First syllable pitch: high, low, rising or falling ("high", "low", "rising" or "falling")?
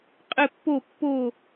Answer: falling